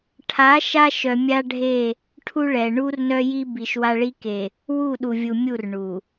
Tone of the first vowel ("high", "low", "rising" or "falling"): rising